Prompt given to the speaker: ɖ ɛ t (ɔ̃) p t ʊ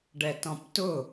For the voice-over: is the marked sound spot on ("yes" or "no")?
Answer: yes